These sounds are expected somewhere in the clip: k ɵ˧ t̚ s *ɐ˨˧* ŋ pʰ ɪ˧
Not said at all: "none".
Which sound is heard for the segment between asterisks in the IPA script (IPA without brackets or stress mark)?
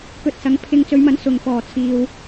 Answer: ɐ˨˧